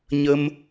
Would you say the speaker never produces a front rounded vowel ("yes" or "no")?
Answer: yes